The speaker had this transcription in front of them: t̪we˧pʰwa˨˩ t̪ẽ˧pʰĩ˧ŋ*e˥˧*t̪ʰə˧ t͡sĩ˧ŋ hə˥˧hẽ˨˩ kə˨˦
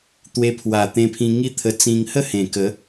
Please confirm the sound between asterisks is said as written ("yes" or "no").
no